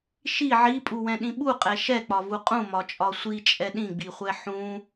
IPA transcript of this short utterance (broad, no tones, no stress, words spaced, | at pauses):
ʃi ʕipʼuwɛ̃ɗĩ ɓuqʼɛ ʃɛk͡pɒvu qʼũmɒt͡ʃʼɒ sʷit͡ʃʼɛ ɗĩɡ͡biχʷɛ ħũ